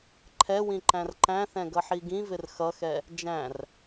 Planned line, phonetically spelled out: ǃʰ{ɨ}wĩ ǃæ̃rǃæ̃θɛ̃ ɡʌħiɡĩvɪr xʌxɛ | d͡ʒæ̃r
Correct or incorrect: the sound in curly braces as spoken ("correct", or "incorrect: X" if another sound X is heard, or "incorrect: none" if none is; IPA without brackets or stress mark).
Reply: incorrect: ɛ